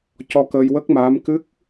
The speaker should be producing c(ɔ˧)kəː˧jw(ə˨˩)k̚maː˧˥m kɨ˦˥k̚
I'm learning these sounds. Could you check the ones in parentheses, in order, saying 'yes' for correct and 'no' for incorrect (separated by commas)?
yes, no